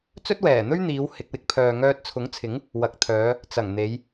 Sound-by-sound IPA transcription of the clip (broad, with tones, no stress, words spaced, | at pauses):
t͡sɵ˥t̚wɛː˨˩n̪ɵ˥ɥn̪iː˨˧w hɪ˧k̚wɪ˧k̚ pʰœː˨ŋœː˧t̚ t͡sʰʊ˨˥ŋt͡sʰɪ˨˥ŋ | wɐ˨˥k̚t̪ʰœː˨˧ | t͡sɐ˨˩ŋn̪e˨˧j